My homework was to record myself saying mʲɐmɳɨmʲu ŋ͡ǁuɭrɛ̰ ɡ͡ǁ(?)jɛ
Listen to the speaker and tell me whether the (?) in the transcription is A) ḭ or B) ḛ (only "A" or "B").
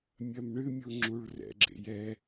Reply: B